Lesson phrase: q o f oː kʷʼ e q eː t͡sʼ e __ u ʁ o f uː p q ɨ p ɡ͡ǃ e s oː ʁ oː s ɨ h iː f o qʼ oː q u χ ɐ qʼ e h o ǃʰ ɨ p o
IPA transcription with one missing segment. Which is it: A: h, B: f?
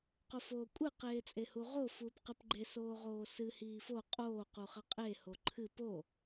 A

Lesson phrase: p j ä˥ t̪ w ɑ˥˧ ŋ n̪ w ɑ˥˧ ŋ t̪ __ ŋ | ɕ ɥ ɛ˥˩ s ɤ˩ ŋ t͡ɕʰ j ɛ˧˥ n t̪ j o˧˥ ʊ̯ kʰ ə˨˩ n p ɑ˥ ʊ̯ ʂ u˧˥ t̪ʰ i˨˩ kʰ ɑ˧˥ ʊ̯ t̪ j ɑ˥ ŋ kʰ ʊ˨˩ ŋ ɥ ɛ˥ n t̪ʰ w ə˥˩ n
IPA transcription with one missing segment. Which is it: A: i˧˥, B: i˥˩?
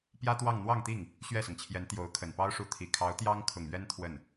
B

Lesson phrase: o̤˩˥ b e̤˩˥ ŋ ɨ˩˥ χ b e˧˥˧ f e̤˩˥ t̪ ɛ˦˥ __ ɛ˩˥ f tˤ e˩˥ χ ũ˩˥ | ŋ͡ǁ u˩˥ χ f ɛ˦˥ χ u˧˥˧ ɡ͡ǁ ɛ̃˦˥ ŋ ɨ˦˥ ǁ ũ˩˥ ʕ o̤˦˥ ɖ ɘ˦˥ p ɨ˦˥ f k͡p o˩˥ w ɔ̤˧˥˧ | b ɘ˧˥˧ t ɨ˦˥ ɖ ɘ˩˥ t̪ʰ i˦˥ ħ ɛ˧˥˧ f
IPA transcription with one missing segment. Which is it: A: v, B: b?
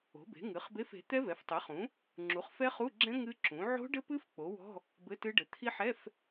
A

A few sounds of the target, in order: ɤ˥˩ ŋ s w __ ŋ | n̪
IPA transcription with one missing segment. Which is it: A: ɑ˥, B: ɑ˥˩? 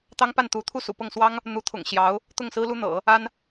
A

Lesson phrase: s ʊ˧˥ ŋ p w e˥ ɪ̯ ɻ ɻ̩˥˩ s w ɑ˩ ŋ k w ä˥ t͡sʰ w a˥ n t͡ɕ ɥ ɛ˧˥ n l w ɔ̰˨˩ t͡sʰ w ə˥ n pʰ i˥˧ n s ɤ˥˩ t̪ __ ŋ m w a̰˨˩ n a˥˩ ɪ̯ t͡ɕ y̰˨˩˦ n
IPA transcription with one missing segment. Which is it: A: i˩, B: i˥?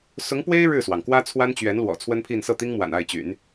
B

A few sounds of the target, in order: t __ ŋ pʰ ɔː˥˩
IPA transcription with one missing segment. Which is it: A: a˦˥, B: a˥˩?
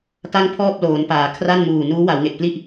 B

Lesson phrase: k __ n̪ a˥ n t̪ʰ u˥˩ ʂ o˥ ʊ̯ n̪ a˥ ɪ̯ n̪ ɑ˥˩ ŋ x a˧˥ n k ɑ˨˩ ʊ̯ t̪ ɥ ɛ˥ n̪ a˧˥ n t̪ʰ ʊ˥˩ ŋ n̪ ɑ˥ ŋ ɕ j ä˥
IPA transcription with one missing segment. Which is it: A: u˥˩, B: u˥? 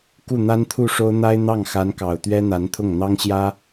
A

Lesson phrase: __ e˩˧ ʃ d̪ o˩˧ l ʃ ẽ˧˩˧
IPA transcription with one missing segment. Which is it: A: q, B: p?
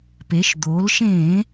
B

